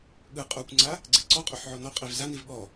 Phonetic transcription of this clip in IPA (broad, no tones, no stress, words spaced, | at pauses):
ɠɯ qʼokʷŋ͡ǀa | ɡ͡ǀeǀɔqʼoħ ʕɔnɔqʼev zaniv ɠɔ